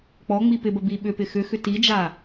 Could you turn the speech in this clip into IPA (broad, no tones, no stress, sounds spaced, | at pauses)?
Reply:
k͡p ɔ ŋ͡m i p ɪ b ə b i ɓ ʏ p ɪ x ʏ x ʏ t i d͡ʒ a